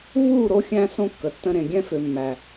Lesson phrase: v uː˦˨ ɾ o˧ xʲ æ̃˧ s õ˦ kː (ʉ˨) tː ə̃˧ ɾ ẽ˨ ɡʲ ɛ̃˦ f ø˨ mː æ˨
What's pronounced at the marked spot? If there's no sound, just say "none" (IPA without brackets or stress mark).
ə˨